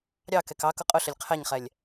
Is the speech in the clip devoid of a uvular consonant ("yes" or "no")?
no